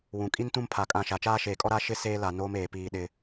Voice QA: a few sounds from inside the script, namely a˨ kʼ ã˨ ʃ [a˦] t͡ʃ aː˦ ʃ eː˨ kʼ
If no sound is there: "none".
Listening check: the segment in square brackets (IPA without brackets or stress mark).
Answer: a˨